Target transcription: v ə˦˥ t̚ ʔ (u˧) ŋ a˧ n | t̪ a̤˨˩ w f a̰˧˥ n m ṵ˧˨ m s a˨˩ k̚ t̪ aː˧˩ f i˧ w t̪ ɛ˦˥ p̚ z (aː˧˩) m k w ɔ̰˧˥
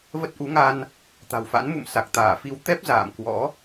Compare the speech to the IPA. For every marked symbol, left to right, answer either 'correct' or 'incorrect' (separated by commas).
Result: incorrect, incorrect